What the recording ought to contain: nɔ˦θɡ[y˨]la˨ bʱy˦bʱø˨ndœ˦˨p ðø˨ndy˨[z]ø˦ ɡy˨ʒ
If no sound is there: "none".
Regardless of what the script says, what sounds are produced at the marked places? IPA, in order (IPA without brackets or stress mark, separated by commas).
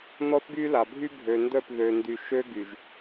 y˦, ʃ